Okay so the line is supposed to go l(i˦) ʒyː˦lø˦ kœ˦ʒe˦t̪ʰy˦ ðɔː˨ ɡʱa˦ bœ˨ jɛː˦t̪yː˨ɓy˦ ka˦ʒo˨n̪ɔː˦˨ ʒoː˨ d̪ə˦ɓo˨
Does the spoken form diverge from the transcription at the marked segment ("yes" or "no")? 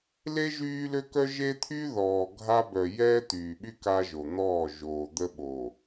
yes